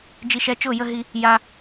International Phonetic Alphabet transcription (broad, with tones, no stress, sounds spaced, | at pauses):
d͡ʒ i˧ ʃ ɛ˧ t͡ʃ ʊ˦˨ j ə˦ ɦ i˧ | j a˧